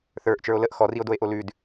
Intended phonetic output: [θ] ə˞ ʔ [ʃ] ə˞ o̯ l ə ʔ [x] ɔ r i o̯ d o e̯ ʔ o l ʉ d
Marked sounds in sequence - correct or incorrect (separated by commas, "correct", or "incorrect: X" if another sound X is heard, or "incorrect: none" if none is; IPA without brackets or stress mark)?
correct, incorrect: t͡ʃ, correct